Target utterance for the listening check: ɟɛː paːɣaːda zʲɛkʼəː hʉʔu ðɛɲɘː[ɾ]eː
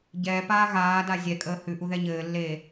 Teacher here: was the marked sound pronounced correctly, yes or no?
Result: no